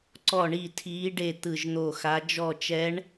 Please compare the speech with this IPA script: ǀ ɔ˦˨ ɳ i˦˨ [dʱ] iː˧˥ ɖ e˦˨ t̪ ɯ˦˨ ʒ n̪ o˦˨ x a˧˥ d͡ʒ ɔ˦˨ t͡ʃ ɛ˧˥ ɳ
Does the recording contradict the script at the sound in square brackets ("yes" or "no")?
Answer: yes